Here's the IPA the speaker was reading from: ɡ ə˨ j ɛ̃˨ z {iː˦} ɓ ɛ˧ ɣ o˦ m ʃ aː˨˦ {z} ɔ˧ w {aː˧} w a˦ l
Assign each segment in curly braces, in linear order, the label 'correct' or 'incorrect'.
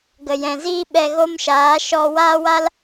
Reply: correct, incorrect, incorrect

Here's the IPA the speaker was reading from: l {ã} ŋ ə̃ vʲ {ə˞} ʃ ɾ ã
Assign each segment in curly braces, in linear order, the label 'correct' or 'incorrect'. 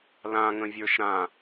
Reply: correct, correct

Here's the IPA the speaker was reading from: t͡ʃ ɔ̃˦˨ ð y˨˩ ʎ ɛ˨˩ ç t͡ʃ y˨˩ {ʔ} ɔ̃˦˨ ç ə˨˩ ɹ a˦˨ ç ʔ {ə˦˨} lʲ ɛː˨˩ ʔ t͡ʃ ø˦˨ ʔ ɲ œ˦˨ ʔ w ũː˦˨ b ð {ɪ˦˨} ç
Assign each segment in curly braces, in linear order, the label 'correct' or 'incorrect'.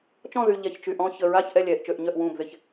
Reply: correct, incorrect, correct

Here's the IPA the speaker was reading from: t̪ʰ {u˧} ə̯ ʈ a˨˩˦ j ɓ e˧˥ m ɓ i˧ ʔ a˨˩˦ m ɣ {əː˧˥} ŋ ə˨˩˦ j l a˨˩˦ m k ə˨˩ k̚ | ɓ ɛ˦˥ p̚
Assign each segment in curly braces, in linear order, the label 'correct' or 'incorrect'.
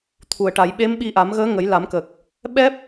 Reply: incorrect, correct

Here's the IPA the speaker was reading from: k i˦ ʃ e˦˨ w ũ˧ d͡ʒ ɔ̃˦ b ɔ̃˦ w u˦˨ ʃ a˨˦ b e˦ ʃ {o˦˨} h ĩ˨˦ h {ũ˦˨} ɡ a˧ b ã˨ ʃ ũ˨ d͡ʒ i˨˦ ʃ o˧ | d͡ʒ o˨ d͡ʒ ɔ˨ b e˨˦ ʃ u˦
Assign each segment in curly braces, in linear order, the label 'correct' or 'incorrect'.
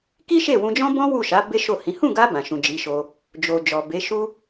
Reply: correct, correct

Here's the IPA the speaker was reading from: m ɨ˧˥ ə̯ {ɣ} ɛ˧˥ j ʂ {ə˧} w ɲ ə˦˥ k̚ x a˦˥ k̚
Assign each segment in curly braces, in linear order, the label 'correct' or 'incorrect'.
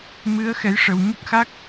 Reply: incorrect, correct

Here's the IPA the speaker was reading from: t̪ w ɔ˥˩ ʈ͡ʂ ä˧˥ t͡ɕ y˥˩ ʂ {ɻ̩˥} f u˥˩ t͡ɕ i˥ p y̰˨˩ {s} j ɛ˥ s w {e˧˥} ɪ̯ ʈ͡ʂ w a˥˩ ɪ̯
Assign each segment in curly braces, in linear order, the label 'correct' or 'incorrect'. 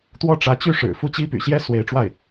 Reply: incorrect, incorrect, correct

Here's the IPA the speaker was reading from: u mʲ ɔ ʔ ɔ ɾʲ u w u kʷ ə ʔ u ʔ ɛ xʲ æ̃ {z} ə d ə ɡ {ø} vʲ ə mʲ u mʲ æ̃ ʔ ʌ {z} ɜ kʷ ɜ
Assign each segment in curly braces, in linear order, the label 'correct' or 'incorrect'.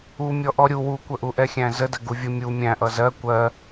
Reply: correct, incorrect, correct

